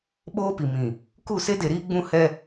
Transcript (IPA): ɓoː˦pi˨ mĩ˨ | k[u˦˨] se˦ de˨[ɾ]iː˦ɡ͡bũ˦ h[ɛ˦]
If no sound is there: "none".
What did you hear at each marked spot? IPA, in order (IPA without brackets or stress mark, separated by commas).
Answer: u˦˨, ɾ, ɛ˦